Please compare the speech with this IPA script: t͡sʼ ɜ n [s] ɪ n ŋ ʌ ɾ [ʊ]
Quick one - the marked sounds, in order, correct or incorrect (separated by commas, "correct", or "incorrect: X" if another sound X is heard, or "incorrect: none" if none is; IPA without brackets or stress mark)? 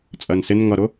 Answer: correct, correct